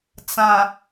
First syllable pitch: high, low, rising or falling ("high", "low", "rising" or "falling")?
low